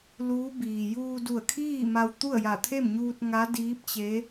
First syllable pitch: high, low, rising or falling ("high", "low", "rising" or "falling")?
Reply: rising